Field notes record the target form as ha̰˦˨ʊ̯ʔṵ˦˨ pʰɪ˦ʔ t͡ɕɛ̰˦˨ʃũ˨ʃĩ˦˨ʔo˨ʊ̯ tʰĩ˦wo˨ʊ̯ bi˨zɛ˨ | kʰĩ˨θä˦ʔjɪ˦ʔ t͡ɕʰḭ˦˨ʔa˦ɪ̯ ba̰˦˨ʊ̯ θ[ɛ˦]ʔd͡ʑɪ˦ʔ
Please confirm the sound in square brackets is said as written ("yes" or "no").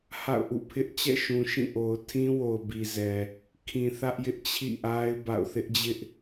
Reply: no